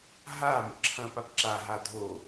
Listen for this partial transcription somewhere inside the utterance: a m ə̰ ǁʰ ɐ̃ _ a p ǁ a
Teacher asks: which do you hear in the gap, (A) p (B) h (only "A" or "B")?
A